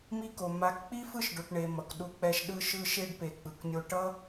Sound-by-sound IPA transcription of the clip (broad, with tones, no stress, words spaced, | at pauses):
mi˦ko˨ ma˨˦kk͡pi˦ fɯ˦˨ʃɖo˨ʈɳe˨ mʌ˨kɗu˧k͡pɛ˧ʃ ɗɯ˦ʃɯ˦ ʃe˧ɖpe˨ k͡pɯ˨knʲo˧ ʈʌ˦